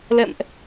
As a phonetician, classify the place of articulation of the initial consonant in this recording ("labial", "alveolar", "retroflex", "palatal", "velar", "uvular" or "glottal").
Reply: alveolar